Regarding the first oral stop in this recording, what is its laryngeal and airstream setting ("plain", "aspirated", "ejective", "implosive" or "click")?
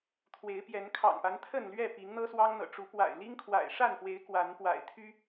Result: aspirated